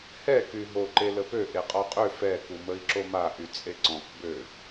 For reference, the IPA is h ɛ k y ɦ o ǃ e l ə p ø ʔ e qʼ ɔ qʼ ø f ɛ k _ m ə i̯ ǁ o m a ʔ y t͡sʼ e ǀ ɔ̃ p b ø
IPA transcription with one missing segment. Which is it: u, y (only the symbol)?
u